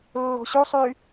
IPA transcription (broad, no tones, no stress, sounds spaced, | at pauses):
lː o̤ ɕ u sˤ yː